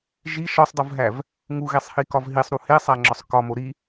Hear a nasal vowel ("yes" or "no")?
no